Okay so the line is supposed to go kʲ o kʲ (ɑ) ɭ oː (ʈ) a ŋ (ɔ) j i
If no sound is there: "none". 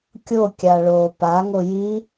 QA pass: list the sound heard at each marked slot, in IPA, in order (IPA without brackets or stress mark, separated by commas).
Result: a, p, o